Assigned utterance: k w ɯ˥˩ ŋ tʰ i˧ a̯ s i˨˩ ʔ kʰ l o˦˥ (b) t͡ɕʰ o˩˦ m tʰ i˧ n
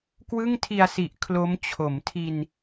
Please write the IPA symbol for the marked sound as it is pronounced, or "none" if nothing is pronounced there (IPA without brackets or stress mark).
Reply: m